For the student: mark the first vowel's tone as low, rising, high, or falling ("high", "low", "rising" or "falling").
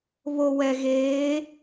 low